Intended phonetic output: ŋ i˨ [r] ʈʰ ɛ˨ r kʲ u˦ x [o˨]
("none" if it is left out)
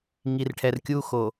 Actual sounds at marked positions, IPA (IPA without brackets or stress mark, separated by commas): r, o˨